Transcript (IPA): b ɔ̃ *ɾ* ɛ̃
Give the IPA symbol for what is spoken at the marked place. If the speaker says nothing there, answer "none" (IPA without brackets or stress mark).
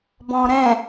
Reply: ɾ